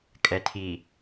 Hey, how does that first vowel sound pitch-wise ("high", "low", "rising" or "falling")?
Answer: low